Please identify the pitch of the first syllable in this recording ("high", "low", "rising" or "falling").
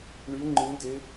rising